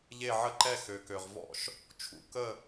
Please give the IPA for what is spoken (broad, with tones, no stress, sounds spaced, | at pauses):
ʎ e˧˩ ʕ ə˧˩ ǃ ɛ˧˩ x ø˩ k ø˩ ʁ v ɔ̰˧˩ ʃ | t͡ʃʰ ṵ˧˩ k ə˧˩